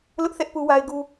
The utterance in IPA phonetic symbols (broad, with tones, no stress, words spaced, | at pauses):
lʊ˦ʔθɛ˦ʔ pu˦wa˦ɪ̯ɡu˦